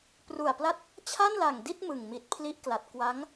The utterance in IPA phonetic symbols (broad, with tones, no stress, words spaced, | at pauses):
pru˨˩a̯pla˦˥t̚ | t͡ɕʰa˥˩nla˨˩ŋdi˥˩t̚ mɯ˨˩ŋmi˨˩t̚ pʰli˦˥ʔkla˨˩t̚ kwa˦˥ŋ